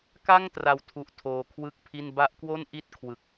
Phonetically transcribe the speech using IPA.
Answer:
k a˥˩ ŋ t r a˨˩ w tʰ u˨˩ ʔ tʰ oː˧ kʰ w ɯ˥˩ k̚ pʰ i˥˩ n b a˦˥ ʔ k w o˥˩ n ʔ i˥˩ t̚ kʰ w ɯ˨˩ k̚

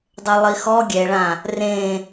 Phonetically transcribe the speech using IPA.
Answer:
dˤ ɛ lˠ i x ɔ ɡʲ ɛ ɭ ã | r ẽ

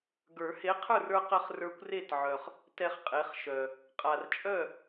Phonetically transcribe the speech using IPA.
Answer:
ɡ ə˞˨˩˦ h e˨˥ qʰ ə˞˥˨ r ə˞˦ q ə˦ χ r ə˞˦ kʷ r e˥˨ t ʕ œ˨ χ | t ɛ˦ χ qʼ e˨˥ χ ʃ œ˨ | qʼ a˨ r t͡ʃʼ œ˥˨

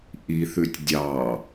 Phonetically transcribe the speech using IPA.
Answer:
ʔ i θ ʉ tʲ dʲ ɑ

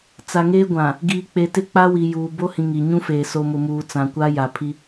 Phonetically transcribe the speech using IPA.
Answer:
t͡s a˨ ŋ eː˦ ɡʷ ã˨ | ɡ iː˨ k͡p e˨ t ɪ˦ k͡p a˦ w i˨ j uː˨ b o˦ h ĩ˨ ŋ i˨ ɲ ũ˦ f eː˨ s o˨ m ʊ˨ m uː˨ t͡s ã˨ kʷ a˦ j a˨ pʰ i˦

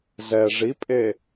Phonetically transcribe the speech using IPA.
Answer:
z ɛ ʐ i pʼ e

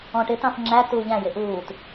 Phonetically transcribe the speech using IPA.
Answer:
ɔ̃ ʈ ɪ t ɑ̃ f ŋ͡ǁ æ t uː ʎ æ̃ j ɪ ʔ uː t

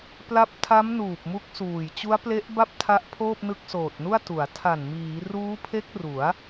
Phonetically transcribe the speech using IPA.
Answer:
p l a˦˥ p̚ tʰ a˦˥ m n uː˨˩ p̚ m u˦˥ k̚ s uː˨˩ j t͡ɕ u˦˥ a̯ p l e˦˥ ʔ b a˥˩ p̚ tʰ a˦˥ ʔ pʰ oː˥˩ p̚ n ɯ˦˥ k̚ s oː˨˩ t̚ n u˥˩ a̯ t u˩˦ a̯ tʰ a˨˩ n m iː˩˦ r uː˦˥ pʰ e˦˥ k̚ r u˩˦ a̯

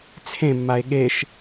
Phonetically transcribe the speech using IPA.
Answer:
t͡sʰ ẽ mː a e̯ ɠ e ʃ

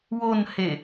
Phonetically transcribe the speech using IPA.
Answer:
w o n h e

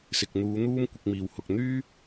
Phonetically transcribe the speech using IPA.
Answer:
s ɪ˨ k̚ n̪ uː˨˧ n̪ uː˥ m kʷ ɪ˧ k̚ m iː˨ w h ʊ˨ k̚ n̪ yː˥

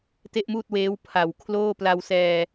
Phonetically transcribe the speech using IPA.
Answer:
t e˥˩ ʔ m uː˥˩ t̚ w eː˦˥ w pʰ a˨˩ w kʰ l oː˥˩ p l a˧ w s ɛː˧

